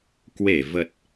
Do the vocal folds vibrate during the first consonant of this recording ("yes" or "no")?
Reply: no